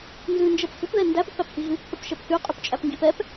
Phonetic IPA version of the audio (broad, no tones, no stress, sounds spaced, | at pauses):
n z ʉ n d͡ʒ ɛ p f ʏ p ð ɛ n d æ p ʏ p æ p h i ɣ ʉ p θ ə p ʃ ɛ p θ y qʼ y p t͡ʃʼ æ p ŋ ɡ i p ɛ p